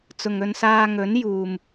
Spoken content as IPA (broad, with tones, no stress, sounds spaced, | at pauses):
t͡s ʊ˨ ŋ ɵ˧ n s aː˧ ŋ ɵ˨˥ n j uː˨ m